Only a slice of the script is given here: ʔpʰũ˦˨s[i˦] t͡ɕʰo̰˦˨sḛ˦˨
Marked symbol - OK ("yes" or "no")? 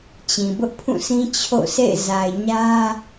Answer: no